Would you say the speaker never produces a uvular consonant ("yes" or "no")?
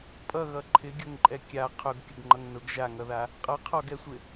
no